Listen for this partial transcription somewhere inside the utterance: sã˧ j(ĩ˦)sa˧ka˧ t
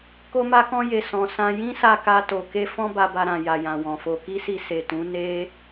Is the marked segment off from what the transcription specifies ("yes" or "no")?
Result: no